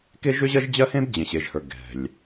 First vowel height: mid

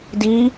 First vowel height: high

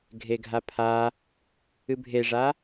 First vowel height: mid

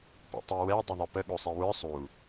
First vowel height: high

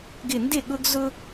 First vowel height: high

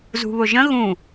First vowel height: high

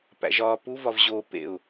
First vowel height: low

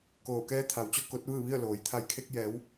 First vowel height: mid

